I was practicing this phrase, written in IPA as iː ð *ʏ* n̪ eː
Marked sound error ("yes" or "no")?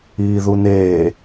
yes